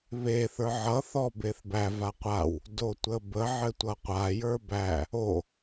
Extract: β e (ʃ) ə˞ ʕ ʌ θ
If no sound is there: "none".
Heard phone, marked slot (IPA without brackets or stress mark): θ